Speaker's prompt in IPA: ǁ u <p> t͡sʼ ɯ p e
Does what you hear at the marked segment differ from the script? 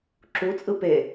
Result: yes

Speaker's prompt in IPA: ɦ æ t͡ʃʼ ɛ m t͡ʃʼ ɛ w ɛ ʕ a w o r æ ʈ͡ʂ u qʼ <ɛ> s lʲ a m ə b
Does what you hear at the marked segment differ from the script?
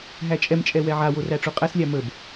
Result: yes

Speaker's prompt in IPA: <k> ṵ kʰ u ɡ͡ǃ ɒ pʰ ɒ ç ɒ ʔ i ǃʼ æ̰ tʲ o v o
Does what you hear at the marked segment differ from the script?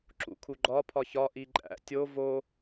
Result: yes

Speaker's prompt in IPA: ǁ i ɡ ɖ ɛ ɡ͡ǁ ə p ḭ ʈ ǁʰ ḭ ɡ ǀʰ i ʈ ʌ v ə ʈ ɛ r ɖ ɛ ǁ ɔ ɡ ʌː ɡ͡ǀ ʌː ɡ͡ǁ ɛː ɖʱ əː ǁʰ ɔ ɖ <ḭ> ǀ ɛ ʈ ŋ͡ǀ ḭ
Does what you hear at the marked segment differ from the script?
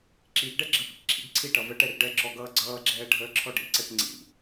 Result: no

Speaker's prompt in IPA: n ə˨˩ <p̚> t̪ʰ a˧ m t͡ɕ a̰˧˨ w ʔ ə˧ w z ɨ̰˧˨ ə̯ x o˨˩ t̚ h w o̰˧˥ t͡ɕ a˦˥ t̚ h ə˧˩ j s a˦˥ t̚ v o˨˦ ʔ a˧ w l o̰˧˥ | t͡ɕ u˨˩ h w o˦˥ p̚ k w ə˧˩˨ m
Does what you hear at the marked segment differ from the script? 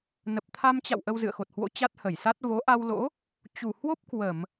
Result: no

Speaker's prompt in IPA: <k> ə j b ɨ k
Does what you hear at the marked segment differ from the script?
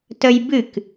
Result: yes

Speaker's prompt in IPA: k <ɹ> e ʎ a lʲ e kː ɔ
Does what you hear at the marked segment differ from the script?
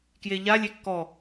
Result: yes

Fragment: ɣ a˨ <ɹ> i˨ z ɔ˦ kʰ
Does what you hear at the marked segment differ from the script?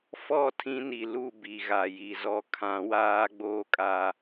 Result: yes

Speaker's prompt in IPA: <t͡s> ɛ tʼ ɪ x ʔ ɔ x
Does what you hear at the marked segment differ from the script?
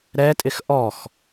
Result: yes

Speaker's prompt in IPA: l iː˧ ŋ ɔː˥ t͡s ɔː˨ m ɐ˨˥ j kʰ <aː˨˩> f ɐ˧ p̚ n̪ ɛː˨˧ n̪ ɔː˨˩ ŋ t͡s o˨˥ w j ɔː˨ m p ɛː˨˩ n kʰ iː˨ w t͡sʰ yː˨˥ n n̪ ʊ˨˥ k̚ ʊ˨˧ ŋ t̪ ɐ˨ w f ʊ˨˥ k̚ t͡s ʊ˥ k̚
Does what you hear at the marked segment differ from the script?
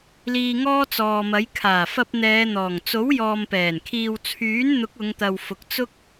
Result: no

